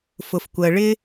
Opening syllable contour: low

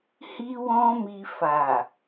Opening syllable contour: high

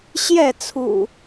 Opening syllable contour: falling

